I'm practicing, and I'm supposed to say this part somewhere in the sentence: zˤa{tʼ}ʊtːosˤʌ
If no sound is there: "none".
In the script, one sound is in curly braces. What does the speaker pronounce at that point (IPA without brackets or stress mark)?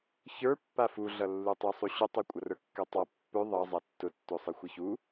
tː